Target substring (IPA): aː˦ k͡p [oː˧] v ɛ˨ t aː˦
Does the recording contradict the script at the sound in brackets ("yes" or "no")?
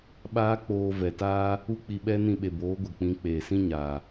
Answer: no